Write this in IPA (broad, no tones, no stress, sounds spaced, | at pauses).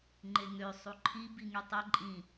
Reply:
ŋ͡ǃ e ŋ ø sˤ u ǃʰ i b i ŋ y tˤ e ǃʼ ĩ